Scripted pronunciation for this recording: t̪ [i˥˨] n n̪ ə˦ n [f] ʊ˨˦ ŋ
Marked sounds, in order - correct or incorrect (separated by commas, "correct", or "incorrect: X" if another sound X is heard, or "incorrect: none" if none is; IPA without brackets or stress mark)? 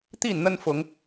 correct, correct